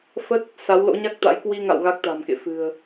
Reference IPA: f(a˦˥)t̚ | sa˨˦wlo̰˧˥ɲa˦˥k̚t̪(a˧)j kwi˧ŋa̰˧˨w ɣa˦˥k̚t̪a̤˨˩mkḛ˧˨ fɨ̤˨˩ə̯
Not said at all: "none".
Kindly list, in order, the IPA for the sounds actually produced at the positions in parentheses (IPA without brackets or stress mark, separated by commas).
ə˦˥, a̰˧˥